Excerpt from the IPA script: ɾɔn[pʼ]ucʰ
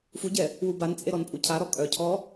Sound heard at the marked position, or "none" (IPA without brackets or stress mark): pʼ